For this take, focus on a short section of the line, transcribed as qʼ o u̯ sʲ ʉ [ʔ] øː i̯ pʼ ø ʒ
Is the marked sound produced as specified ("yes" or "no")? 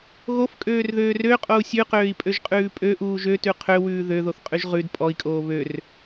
no